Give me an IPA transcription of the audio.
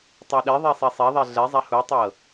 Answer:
tˤ a ɗ e ðˤ e sˤ e sˤ e ðˤ ɛ ɮ ɛ zˤ a h u tˤ ɤ

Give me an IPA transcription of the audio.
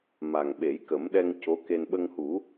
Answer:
m a˨˩ ŋ ɓ e˨˩˦ j k ə˨˩˦ m ɗ ɛ˧ ŋ c o˧˥ k e˧ n ɓ ə˧ ŋ h u˨˩˦

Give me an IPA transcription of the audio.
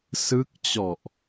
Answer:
s ɯ˦˥ k̚ t͡ɕ ɔ˨˩ ʔ

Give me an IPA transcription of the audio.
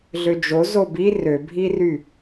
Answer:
ɮ ø d͡ʒ o z o b i r ø bʱ i r y

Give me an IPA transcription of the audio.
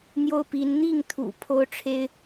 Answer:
n̪ j o˥ ʊ̯ p i˧˥ n n̪ i˥˩ ŋ t̪ʰ ṵ˨˩ pʰ o˥ ʊ̯ ʈ͡ʂʰ e˥ ɪ̯

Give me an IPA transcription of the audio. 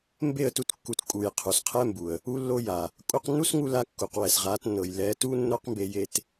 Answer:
m b e˦˨ ə̯ t u˧ t kː u˨ t kʼ u˨ j qʰ u˨ s qʰ ɛ˦ m b u˨ ə̯ | u˦ lː o˦ j a˨ | kʼ u˧ q nː u˦ s ŋ u˧ l a˧ kː u˨ q w ɛ˨ s ʁ a˨˦ t nː ɤ˨ j l ɛ˨˦ t u˦ nː o˦ q m b e˧ j e˧ t

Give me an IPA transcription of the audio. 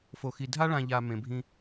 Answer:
f o˨ x i˨ dʱ a˦ ɭ ã˨ ʎ a˨ m ẽ˨ bʱ ĩ˦

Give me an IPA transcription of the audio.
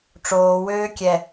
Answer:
ʈ͡ʂ oː w øː kʲ ɛ

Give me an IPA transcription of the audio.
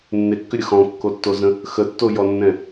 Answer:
nː e kː ʏ ɾʲ ə x ɔ̃ kː o tː o z ə̃ | x ə tː o j ɔ nː ɛ̃

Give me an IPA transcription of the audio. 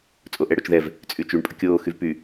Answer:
t͡sʼ o ʔ ɛ ɽ o t͡ʃ ð ɛ v | t͡sʼ y t͡ʃ y ɳ pʼ ə kʲ oː x y v p y

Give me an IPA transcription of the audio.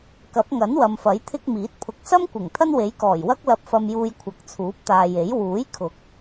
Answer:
k ɐ˨˥ p̚ ŋ ɐ˨˥ n w ɐ˨ m f ɐ˨˥ j t̪ʰ ɪ˥ k̚ m iː˨˥ t̚ pʰ ʊ˨ k̚ s ɐ˥ m kʷ ɪ˨˩ ŋ t̪ʰ ɐ˥ n w e˨˥ j k ɔː˨˩ j w ɐ˥ k̚ l ɐ˧ p̚ f ɐ˧ m j uː˧ j kʷʰ ɐ˨˥ k̚ t͡sʰ uː˨˥ p̚ t̪ aː˨ j e˨˥ j w uː˨˥ j kʰ ʊ˨˥ k̚

